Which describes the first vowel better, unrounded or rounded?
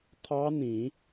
unrounded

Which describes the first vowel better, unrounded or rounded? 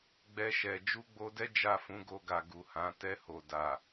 unrounded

